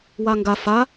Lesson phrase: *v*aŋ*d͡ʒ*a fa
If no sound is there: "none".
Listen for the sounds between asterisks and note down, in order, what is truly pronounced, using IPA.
w, ɡ

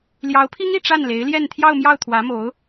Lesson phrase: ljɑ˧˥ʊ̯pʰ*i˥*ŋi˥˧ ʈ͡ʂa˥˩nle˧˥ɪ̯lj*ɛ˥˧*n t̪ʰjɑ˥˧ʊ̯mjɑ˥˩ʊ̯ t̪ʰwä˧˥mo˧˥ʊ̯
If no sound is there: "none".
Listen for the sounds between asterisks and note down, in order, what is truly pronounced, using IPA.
i˥, ɛ˥˧

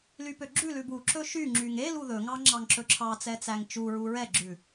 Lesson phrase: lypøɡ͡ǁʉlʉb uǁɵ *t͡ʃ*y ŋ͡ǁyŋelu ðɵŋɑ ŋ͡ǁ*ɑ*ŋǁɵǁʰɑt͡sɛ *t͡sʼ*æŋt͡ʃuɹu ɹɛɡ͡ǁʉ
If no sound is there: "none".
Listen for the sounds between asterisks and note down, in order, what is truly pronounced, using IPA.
ʃ, ɑ, t͡s

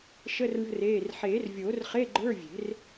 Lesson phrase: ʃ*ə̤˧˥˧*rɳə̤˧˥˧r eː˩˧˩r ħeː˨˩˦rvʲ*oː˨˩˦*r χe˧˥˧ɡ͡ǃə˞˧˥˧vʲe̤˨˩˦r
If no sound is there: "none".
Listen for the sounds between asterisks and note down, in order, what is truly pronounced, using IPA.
ə˧˥˧, oː˨˩˦

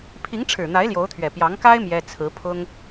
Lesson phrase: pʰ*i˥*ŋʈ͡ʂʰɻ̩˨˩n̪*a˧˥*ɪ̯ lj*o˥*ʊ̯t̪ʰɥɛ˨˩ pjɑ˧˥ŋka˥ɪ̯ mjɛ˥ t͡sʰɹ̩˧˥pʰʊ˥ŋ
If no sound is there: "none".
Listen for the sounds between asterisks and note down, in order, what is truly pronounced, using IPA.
i˧˥, a˧˥, o˧˥

